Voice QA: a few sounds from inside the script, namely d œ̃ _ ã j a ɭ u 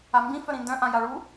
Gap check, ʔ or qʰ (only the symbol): ʔ